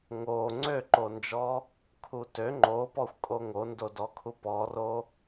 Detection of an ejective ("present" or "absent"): present